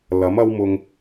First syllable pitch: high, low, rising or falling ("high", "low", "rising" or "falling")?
rising